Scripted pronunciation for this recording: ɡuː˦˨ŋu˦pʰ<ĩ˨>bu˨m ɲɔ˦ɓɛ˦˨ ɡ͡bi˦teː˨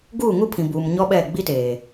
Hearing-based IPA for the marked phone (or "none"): ĩ˨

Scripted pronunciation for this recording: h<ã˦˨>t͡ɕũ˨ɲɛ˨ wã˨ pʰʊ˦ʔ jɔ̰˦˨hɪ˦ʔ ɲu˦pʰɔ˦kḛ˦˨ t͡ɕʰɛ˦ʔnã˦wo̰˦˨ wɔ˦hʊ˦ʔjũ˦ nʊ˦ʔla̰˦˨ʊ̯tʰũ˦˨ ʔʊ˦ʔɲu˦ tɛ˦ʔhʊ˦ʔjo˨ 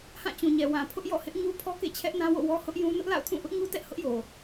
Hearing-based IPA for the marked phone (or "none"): ã˦˨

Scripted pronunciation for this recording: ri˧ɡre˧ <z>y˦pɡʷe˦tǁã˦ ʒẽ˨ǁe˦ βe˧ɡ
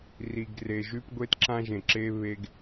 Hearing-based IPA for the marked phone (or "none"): ʒ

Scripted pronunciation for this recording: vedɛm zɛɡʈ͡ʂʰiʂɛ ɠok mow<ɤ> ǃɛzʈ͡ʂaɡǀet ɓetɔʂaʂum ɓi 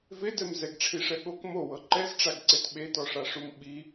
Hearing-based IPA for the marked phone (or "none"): ɤ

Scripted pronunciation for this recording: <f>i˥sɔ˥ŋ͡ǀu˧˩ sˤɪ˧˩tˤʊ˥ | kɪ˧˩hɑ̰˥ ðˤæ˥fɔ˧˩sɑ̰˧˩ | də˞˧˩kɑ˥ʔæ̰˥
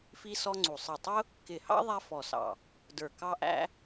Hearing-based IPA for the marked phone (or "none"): f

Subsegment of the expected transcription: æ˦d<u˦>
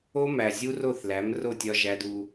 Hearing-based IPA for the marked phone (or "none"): u˦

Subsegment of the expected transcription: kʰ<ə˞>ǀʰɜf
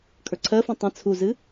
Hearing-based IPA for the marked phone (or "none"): ə˞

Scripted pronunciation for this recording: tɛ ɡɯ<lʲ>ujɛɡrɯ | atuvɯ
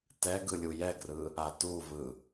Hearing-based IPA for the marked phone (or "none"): lʲ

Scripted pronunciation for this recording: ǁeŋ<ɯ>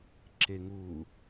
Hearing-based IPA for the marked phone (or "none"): u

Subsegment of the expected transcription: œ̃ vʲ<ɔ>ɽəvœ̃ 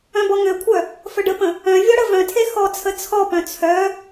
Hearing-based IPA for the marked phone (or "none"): ɔ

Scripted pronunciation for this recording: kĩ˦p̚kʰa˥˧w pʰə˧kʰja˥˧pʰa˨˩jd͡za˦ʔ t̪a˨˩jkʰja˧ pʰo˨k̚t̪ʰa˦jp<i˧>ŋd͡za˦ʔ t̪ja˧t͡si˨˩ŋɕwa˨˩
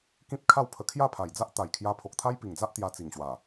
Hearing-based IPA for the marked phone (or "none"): i˨˩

